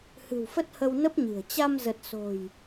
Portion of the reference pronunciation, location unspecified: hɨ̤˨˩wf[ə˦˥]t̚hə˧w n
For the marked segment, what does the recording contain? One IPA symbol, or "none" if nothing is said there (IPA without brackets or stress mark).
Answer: ə˦˥